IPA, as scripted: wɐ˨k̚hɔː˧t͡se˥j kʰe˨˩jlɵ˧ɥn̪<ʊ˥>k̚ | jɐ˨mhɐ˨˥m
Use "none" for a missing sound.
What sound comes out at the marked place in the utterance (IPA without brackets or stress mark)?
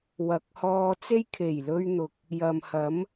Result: ʊ˨